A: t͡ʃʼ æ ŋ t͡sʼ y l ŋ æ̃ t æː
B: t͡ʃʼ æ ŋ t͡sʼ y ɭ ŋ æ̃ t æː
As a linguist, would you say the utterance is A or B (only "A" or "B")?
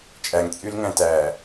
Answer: A